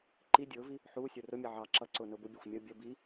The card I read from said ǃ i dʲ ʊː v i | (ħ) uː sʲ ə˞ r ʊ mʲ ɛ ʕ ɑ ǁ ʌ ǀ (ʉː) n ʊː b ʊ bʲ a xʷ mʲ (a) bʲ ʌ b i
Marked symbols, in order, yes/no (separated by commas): yes, no, no